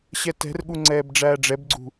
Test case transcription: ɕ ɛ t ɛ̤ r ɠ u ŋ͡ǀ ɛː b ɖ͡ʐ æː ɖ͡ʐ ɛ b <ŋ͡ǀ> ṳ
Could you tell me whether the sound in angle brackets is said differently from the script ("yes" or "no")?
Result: yes